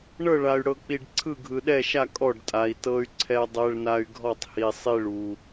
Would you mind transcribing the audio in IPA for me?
ɳ ɤ˥˧ ɭ a˧ y̯ ɽ ɤ˧ k͡p i˧ ɖ ǀʰ ɯ˥˧ ɡʱ ɯ˧ ɗ ɛ˥˧ ʃ a˥˧ kʼ ɔ˥˧ ɖ tʼ a˧ i̯ t ɤ˧ y̯ ǀʰ ɛ˧ dˤ ɛ˧ ɭ n a˧ y̯ ɡʱ ɔ˥˧ tˤ h i˧ sˤ i˥˧ ɭ u˧

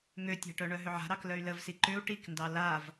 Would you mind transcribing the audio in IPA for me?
ŋ ø tʲ a̤ ʈ œ ɳ œ ɦ ʏ ʕ a̤ ɾ ɑ k l œ y̯ l ə v s i ǃ ʏ u̯ ʈ i k n d ɑ l a v

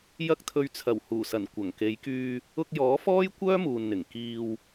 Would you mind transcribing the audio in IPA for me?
j ɐ˧ k̚ t̪ʰ ɵ˨ ɥ t͡sʰ ɐ˨˩ w h uː˨˩ s ɐ˨˩ n kʷ ɐ˨˩ ŋ k e˨˧ j k yː˧ | ʊ˧ k̚ j ɔː˨˥ f ɔː˥ j kʷ œː˥ m uː˨ n n̪ ɪ˨˩ ŋ k iː˨ w

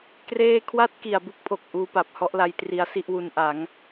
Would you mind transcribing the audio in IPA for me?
k r eː˥˩ kʰ w a˥˩ t̚ k i˨˩ a̯ b u˥˩ k̚ pʰ o˨˩ k̚ ʔ uː˧ p a˨˩ p̚ h ɔ˥˩ ʔ l a˦˥ j t r i˦˥ a̯ s i˥˩ ʔ w u˧ n ʔ a˩˦ ŋ

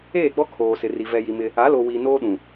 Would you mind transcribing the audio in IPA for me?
eː˦˨ ɡ͡b ɔ˦ kʰ oː˨ s ɪ˨ r i˨ v ɛ˨ j i˨ m ɪ˦ | a˨˦ l o˨ w iː˨ n oː˦ ɗ ũ˨

